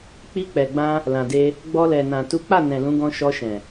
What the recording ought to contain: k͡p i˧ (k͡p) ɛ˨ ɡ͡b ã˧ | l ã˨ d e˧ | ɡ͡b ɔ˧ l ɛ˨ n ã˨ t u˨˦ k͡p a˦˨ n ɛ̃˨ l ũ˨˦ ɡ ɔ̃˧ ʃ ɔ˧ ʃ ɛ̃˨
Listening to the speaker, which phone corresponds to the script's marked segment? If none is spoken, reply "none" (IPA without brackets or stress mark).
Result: k͡p